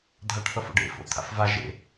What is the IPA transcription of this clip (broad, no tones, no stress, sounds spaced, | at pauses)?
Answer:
dʱ a ʈ θ ʌ f o̰ ɖ ḛ f o̰ t̪ʰ a̰ f v a ʒ ḛ